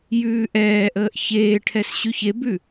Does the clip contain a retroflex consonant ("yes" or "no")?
yes